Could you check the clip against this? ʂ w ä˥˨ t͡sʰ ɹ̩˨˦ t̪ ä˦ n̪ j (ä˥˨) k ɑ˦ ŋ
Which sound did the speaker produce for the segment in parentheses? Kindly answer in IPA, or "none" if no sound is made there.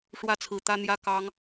ä˦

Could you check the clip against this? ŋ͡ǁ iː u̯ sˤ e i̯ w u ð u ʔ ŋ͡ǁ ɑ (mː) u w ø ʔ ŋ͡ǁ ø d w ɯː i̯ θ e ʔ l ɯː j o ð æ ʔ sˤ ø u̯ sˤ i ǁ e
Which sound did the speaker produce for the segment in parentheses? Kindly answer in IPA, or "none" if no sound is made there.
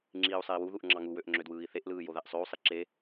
ŋ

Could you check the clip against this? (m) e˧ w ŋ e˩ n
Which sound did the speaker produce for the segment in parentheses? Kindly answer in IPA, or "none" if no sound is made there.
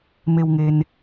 m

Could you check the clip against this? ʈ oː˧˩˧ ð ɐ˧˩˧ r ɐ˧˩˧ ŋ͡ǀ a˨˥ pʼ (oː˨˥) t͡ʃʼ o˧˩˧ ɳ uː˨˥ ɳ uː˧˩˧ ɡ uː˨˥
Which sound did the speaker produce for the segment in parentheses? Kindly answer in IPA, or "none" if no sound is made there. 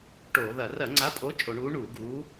o˨˥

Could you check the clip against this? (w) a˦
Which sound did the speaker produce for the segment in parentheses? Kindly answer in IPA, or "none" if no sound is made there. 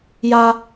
j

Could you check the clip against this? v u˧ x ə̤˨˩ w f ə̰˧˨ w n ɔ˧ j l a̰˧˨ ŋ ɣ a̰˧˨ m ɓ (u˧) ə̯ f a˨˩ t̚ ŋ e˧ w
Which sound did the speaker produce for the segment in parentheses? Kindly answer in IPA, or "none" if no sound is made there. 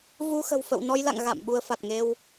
u˧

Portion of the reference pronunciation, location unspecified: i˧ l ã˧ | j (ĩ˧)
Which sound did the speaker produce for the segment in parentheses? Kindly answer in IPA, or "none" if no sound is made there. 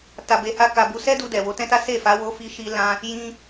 ĩ˧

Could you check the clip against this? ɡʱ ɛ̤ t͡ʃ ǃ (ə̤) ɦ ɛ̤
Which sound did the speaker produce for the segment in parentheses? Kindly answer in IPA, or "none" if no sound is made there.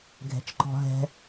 ɔ̤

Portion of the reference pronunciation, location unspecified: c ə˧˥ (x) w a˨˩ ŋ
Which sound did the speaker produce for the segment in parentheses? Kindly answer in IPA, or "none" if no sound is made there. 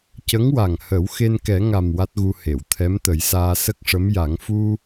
ŋ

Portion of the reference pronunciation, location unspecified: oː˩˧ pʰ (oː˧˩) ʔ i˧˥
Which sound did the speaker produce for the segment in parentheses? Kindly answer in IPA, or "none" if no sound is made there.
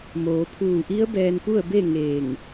uː˧˩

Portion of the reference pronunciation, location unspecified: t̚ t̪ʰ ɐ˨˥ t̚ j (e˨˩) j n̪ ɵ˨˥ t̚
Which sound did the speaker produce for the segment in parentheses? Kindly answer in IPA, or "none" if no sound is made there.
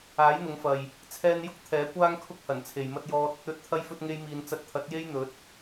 e˥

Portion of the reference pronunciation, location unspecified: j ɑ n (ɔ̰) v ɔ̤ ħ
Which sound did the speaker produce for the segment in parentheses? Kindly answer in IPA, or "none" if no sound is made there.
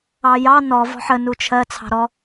ɔ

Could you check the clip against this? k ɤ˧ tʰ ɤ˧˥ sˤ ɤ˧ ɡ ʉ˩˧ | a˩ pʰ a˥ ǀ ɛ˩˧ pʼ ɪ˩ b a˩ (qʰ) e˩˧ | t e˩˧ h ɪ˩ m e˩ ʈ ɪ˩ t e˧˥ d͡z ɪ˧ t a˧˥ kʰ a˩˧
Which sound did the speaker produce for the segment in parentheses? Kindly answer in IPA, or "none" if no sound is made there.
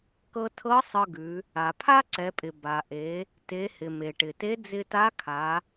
ʔ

